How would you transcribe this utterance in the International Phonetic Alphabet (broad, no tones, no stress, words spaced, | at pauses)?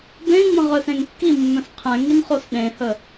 bẽŋ͡mə̃ ʁœsẽŋkːimːœ̃s qʰɛ̃ŋin χosɗẽhə